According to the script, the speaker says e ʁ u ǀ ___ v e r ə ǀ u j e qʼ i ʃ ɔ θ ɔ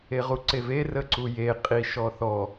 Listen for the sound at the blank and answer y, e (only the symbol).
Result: e